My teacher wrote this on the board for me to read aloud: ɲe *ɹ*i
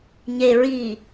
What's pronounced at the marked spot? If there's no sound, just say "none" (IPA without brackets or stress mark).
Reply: ɹ